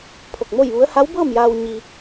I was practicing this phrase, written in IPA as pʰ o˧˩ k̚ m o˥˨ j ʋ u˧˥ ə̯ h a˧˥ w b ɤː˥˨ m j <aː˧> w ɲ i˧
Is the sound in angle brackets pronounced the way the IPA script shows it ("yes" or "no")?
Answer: yes